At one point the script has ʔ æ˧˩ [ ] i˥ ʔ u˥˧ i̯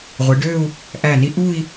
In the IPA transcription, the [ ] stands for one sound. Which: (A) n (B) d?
A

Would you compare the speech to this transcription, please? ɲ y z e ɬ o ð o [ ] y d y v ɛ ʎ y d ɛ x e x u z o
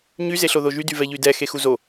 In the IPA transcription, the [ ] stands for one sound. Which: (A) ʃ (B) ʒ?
B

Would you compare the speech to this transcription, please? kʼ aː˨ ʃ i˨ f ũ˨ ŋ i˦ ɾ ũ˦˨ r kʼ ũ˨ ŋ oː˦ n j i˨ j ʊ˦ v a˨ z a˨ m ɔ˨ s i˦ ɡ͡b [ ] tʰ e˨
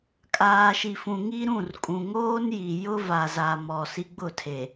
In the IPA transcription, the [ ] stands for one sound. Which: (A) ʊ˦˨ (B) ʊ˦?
A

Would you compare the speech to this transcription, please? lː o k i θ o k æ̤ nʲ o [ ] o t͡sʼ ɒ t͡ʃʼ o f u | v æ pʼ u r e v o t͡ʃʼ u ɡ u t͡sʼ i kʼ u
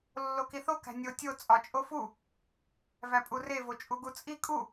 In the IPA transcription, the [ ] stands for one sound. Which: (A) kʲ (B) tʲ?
B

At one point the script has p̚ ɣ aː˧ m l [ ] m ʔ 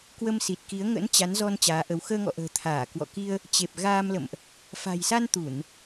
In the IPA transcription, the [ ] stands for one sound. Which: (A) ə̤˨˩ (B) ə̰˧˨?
B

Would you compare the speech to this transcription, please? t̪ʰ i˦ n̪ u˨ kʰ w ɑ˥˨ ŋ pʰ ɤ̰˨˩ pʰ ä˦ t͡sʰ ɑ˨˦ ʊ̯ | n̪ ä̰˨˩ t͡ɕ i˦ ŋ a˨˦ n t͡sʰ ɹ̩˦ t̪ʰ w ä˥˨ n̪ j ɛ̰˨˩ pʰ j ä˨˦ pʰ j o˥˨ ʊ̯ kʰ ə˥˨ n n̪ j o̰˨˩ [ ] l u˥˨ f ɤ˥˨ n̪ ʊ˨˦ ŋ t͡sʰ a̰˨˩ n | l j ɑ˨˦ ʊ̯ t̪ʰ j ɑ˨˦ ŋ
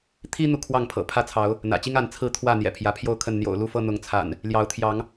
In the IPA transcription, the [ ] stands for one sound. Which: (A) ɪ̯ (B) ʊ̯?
B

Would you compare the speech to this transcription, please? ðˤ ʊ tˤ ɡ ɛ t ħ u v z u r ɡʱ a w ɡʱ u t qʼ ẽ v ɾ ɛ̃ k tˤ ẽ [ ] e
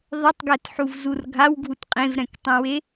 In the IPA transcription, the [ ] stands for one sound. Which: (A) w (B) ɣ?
A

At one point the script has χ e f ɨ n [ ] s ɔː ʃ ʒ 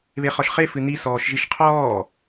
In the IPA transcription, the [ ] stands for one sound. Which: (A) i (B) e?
A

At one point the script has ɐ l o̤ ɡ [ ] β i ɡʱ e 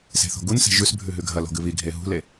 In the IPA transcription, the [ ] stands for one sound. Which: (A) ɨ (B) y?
A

